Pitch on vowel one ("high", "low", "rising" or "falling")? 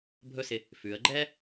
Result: high